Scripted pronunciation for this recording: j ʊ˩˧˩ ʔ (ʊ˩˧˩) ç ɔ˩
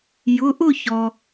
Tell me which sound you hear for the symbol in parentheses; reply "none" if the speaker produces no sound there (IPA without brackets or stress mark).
ʊ˥˨